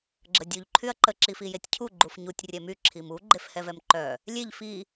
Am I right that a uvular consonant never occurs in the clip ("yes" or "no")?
yes